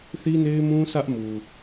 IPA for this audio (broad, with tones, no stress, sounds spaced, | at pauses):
θ i˦ n e˦ ɪ̯ m ũ˦ sʰ ä˦ ʔ m u˨